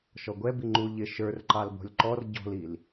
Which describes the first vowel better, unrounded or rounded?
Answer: rounded